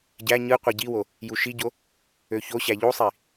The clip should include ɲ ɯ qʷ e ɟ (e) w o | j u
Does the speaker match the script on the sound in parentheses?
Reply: no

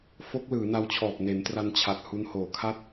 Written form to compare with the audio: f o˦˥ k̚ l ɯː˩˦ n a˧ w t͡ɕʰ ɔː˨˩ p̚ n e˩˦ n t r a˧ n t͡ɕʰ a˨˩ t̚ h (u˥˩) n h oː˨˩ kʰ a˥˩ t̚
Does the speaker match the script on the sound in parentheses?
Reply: no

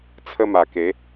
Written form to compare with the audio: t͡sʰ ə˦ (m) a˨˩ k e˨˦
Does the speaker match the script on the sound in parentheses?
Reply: yes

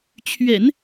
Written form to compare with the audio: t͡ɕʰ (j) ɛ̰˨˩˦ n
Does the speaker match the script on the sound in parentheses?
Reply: no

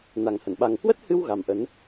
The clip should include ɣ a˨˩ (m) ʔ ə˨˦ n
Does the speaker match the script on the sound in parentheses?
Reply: yes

